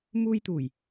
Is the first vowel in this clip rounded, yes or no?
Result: yes